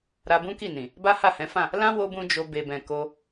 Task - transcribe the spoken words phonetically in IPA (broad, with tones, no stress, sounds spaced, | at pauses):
ɾ a˧ b ũ˦ k i˦˨ n ĩ˨ | b a˦ h a˦˨ h ɛ̃˨˦ f ã˦˨ | l ã˦ w o˦ b ũ˦ d͡ʒ o˧ b e˨ b ɛ̃˨ k o˧